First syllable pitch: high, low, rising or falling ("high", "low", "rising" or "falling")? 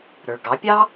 low